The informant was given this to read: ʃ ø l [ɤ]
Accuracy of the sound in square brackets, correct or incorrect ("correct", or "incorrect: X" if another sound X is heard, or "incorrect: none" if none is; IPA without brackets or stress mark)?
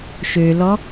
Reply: incorrect: ɔ